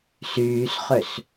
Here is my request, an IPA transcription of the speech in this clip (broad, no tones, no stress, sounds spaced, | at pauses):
s yː s χ ø s